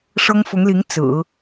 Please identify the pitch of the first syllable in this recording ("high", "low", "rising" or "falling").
high